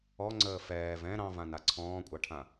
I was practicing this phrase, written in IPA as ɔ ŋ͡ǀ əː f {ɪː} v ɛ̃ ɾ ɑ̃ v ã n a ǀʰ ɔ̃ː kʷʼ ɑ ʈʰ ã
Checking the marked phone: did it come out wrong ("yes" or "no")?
yes